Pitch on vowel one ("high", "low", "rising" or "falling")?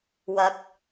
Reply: rising